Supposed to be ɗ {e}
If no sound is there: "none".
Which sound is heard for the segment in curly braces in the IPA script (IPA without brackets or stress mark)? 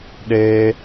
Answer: e